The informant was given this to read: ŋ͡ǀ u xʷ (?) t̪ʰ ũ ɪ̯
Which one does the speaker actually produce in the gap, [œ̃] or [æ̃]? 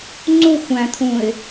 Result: æ̃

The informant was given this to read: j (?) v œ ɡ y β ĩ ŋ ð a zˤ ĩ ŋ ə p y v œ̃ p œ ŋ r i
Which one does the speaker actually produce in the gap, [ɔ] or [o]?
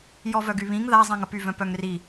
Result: ɔ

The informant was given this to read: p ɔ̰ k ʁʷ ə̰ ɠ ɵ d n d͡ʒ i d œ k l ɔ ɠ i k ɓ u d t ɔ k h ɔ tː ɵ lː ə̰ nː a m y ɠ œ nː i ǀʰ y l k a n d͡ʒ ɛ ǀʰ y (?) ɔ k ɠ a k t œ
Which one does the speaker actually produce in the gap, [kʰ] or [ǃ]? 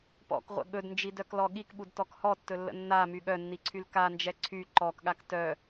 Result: ǃ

